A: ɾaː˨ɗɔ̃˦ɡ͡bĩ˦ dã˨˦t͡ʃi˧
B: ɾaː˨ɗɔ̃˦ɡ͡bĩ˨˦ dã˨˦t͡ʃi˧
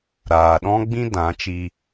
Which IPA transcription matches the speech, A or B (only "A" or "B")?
A